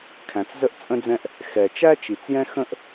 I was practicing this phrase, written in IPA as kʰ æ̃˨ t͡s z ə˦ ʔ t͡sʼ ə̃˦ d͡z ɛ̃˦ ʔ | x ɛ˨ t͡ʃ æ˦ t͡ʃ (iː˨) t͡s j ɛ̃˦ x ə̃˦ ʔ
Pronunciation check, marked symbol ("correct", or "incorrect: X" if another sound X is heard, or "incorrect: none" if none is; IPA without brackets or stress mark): incorrect: i˨